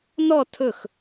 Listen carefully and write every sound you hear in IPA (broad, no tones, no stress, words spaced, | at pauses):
nɔ tʰɵx